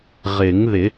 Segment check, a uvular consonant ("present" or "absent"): present